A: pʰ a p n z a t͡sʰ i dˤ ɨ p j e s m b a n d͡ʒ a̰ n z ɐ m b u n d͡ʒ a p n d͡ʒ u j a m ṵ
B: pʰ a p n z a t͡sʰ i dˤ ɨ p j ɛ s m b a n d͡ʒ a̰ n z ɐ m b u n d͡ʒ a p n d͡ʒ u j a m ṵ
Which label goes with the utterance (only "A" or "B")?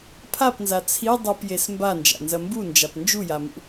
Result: A